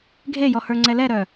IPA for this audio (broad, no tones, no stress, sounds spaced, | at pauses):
ɡʱ e j ɔ h ə˞ ŋ͡ǀ ɛ l ɛ ɾ œ